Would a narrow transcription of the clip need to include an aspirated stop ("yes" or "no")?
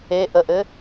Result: no